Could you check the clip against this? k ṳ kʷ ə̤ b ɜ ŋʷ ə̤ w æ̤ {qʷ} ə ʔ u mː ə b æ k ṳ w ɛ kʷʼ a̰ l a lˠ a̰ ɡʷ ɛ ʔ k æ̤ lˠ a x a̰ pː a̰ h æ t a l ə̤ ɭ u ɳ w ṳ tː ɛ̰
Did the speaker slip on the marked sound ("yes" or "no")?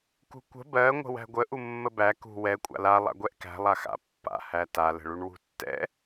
yes